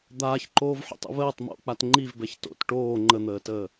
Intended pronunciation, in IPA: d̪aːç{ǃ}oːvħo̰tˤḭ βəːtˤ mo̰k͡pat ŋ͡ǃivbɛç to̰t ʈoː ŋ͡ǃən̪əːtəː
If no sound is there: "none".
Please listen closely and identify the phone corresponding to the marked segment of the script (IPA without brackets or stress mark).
ǃ